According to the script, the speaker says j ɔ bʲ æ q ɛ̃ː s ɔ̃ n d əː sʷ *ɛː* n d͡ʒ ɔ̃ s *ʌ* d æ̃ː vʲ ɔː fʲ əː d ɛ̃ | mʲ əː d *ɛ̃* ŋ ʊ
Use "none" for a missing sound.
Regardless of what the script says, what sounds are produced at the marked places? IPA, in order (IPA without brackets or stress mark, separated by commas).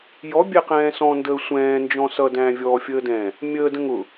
ɛ̃ː, ʌ, ə̃